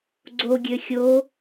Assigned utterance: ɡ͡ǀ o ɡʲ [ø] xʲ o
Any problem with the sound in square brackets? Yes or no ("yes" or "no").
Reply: no